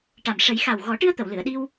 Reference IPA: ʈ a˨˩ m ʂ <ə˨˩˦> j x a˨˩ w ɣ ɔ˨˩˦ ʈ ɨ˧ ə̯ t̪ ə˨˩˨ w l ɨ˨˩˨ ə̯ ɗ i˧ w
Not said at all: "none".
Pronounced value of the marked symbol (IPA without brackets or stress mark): ə˨˩˦